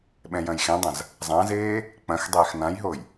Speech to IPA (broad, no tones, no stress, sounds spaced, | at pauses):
ɓ ɛ̃ j ɐ̃ j x ẽ dˤ ɐ̃ z | zˤ ã z eː | k͡p ɐ̃ x dˤ eː x n ã j ɦ o j